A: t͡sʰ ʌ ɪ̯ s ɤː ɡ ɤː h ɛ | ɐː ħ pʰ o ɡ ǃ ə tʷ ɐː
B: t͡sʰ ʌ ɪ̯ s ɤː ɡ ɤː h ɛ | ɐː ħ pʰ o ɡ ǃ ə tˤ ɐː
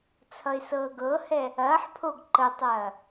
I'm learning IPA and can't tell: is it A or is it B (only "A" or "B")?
B